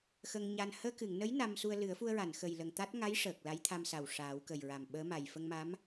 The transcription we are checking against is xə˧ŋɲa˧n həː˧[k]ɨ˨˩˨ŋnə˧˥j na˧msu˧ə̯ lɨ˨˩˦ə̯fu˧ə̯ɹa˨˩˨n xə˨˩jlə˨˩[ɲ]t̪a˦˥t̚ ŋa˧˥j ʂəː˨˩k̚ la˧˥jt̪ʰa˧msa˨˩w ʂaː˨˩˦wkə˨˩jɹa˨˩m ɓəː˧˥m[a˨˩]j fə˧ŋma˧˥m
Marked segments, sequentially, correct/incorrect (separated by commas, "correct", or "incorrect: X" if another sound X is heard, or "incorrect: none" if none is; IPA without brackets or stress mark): correct, incorrect: ŋ, correct